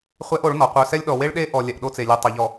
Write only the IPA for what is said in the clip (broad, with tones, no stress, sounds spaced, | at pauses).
χʷ ɛ˦ ʔ o˨˦ ɭ n ɔ˨ qʷ œ˨ s ɛ˦ lʲ ɗ ɔ˨ w e˦ ɭ ɗ e˦ ʔ ɔ˨ lʲ ɛ˨ ʔ ɗ o˦ t͡s e˨ lʲ œ˨ tˤ œ˨ ʎ ɔ˨